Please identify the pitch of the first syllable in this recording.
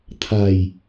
low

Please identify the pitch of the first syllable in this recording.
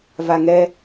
low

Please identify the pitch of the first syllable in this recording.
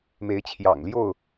rising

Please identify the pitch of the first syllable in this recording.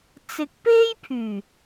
low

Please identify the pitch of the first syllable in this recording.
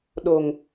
low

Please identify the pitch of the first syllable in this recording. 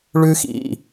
high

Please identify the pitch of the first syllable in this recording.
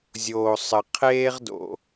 low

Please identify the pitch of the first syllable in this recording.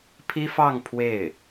high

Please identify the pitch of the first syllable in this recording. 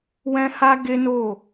high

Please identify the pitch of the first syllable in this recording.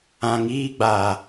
low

